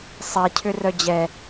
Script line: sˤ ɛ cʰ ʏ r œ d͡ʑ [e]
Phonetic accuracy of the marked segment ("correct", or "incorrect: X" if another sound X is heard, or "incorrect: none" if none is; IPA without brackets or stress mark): incorrect: ɛ